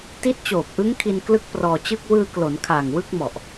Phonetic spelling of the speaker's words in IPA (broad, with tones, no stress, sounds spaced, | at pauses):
t i˦˥ t̚ t͡ɕ oː˨˩ p̚ ʔ ɯ˦˥ ŋ kʰ i˧ n k l ɯ˦˥ k̚ p r ɔː˧ t͡ɕ ɯ˥˩ k̚ w ɯː˧ k l o˩˦ n kʰ aː˨˩ ŋ w ɯ˥˩ k̚ m ɔ˨˩ ʔ